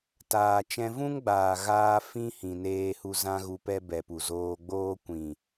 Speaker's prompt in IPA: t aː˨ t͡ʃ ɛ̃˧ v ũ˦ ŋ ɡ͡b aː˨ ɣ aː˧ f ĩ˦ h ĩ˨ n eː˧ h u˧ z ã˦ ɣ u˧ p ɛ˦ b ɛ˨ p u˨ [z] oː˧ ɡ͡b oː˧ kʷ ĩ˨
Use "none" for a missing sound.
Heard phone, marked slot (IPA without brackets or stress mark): z